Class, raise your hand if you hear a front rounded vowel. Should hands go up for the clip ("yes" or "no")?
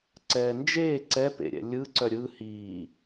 yes